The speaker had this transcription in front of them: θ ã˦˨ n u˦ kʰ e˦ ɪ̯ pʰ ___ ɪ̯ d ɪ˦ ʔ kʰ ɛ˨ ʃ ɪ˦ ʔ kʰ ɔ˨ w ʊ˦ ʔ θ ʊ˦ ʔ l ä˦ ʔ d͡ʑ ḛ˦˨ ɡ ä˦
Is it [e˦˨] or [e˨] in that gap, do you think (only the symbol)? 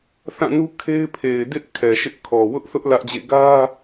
e˨